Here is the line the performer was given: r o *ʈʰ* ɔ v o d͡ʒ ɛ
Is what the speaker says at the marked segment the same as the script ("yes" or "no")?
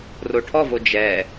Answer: yes